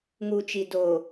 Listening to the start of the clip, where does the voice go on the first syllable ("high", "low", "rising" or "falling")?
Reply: low